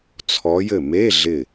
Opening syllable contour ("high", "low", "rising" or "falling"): rising